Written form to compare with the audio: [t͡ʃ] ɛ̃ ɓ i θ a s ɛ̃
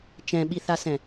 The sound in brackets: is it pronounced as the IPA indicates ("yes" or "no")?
yes